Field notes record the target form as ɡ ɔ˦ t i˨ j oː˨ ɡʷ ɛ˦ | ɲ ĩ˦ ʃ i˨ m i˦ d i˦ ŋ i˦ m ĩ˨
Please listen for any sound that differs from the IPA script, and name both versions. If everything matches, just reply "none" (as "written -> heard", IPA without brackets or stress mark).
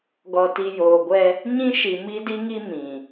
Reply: ɔ˦ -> ɔ˨